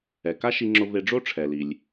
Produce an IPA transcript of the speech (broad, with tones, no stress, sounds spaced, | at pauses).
ɛ˩ k a˥ ʃ i˧ ŋ͡ǁ ʊ˧ v e˧ ɖ͡ʐ o˥ ʈ͡ʂʰ ɛ˩ l i˩ lʲ